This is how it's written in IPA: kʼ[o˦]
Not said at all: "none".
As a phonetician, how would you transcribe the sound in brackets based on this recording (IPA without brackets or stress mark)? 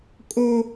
o˦